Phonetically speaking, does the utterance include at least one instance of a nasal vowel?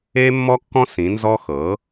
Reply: yes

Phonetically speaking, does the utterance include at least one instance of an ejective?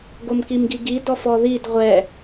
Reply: no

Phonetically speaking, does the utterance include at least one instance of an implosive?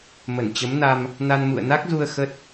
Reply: no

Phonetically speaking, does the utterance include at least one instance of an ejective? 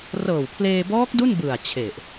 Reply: no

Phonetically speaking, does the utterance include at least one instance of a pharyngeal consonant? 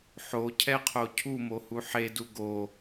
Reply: yes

